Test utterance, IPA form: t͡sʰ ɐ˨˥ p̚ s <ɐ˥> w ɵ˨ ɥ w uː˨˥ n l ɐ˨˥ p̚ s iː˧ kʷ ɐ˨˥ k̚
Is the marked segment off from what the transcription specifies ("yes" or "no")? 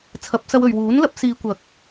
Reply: yes